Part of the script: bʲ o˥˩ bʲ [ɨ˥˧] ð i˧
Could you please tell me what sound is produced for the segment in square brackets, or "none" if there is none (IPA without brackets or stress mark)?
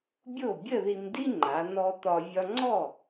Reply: ə˥˧